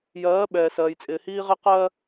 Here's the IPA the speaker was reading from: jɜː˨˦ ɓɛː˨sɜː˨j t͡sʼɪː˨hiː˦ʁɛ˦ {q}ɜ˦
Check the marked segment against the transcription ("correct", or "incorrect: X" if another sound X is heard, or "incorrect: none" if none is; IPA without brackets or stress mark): correct